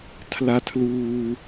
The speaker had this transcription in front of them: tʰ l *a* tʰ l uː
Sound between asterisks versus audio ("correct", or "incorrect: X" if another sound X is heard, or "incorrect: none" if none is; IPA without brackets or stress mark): correct